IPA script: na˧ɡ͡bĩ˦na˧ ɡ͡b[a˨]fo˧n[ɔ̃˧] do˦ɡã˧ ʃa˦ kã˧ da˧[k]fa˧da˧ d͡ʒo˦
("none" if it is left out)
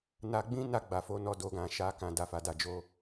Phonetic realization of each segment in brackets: a˨, ɔ˧, none

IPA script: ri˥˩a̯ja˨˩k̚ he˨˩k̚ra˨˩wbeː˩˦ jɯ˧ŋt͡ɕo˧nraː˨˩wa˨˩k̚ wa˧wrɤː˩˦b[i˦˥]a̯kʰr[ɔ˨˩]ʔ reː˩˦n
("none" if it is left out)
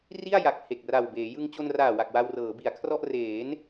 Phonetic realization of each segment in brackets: i˩˦, ɔ˥˩

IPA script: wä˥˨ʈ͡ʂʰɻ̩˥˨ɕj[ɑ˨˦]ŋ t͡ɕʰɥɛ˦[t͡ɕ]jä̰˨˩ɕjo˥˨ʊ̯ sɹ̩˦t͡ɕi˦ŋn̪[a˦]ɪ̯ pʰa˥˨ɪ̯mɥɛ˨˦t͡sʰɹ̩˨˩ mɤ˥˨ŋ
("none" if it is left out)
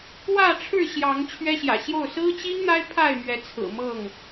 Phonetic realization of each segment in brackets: ɑ˨˦, ɕ, a˦

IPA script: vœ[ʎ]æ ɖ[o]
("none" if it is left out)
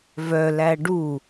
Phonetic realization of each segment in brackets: l, u

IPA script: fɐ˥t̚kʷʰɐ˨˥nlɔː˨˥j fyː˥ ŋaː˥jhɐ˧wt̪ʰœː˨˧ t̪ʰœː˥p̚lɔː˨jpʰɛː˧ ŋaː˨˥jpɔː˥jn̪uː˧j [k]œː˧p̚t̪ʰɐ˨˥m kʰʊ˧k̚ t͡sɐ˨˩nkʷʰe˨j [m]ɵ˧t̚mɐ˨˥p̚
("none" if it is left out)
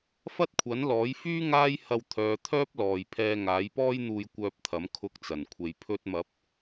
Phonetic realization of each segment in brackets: kʷ, pʰ

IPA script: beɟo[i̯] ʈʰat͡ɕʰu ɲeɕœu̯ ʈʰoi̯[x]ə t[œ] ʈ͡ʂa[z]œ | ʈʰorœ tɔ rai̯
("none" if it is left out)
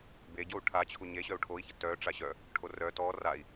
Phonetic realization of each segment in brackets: u̯, ç, œ, ɕ

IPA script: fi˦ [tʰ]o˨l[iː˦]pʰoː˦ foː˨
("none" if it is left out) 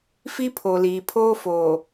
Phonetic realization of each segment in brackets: pʰ, iː˨

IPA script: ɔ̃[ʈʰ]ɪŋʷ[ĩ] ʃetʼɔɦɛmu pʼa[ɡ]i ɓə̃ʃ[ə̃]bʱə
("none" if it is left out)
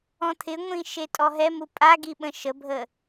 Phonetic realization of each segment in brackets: t̪ʰ, ĩ, ɡ, ə

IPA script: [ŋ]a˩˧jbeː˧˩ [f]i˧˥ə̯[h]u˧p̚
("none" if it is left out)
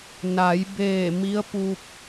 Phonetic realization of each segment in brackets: n, m, p

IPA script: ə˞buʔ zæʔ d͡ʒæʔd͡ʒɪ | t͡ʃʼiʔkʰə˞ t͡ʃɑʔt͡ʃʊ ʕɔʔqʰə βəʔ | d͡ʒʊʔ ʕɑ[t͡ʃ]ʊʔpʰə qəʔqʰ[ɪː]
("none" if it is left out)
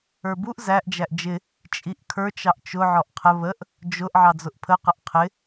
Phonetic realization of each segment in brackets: d͡z, ɪ

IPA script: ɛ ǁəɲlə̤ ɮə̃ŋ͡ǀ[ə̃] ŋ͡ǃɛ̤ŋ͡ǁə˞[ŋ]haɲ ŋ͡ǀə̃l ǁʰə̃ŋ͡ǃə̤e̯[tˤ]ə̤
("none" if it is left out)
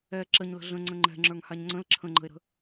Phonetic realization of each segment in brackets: ə̃, ŋ, ɾ

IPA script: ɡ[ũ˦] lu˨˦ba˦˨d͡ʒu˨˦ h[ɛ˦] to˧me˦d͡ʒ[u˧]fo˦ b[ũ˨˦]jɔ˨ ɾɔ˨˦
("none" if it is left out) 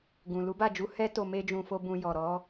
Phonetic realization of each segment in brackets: ũ˨, ɛ˦, ũ˧, ũ˧

